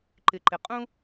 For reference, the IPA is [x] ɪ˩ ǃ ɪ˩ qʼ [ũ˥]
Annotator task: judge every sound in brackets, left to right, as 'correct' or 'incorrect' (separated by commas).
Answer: incorrect, correct